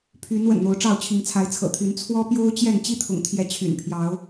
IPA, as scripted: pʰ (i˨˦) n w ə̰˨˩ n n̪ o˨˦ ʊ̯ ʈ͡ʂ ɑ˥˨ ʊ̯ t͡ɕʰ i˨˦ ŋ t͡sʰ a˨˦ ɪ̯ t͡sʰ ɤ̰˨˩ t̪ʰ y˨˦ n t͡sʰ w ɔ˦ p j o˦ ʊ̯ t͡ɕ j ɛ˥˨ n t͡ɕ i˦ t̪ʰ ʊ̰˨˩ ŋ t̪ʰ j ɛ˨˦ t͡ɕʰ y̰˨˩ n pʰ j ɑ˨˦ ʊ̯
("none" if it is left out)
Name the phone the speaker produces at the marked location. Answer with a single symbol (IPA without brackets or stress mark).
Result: y˨˦